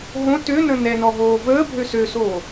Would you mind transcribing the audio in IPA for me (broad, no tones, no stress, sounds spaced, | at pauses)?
ɦ õ t ø n ə̃ n ɛ n ɔ ɦ oː v əː bʱ ø s ø s oː